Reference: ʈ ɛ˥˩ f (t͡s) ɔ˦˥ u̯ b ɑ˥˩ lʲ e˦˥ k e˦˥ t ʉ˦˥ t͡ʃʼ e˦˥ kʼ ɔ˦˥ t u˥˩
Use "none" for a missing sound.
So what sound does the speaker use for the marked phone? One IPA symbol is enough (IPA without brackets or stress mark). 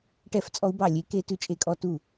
t͡sʼ